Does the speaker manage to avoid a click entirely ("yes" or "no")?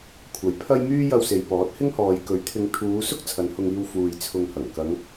yes